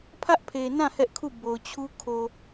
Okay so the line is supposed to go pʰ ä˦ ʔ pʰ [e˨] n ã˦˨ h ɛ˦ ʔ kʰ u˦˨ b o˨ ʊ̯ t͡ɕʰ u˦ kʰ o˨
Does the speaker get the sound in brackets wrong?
no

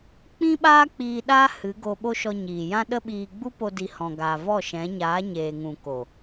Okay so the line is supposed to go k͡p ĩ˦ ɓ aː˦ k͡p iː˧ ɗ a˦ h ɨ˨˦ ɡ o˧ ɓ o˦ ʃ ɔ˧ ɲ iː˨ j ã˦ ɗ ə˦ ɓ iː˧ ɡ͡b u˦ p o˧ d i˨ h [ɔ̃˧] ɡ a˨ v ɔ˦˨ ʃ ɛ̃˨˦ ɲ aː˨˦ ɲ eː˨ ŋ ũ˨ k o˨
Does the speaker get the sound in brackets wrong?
yes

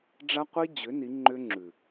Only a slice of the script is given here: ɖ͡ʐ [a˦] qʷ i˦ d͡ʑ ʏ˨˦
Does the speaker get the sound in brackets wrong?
no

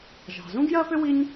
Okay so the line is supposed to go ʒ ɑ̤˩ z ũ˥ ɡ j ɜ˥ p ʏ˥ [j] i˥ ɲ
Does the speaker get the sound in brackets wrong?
yes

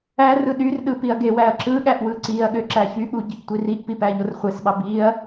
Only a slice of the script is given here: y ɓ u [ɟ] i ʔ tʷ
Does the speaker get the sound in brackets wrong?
no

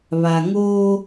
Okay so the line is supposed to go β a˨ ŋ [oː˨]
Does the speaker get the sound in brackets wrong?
yes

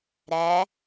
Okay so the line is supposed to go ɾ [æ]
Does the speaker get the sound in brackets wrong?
no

